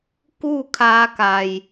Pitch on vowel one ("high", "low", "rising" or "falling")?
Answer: falling